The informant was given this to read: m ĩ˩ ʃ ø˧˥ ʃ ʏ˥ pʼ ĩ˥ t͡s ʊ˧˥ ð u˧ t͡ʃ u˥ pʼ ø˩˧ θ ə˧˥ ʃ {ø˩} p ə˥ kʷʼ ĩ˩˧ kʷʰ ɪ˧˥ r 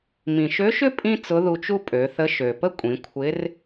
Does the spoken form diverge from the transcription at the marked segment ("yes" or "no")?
no